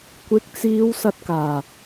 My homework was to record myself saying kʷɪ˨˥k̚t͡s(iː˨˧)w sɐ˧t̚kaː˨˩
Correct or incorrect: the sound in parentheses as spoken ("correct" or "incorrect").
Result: correct